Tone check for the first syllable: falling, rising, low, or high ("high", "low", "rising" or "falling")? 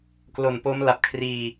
low